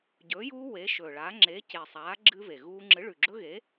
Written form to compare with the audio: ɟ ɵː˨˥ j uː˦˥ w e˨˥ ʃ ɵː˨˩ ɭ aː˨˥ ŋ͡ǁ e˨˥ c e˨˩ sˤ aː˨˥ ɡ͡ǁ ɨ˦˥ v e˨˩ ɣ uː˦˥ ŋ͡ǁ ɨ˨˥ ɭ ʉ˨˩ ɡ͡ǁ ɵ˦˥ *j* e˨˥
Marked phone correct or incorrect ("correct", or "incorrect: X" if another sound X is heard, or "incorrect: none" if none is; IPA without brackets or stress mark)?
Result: incorrect: ɣ